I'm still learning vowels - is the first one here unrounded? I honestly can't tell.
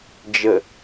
yes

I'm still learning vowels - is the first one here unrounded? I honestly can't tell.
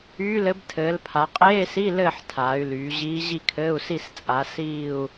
no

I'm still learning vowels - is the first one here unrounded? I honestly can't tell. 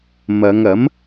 yes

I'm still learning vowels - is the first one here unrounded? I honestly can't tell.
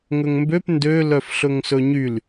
no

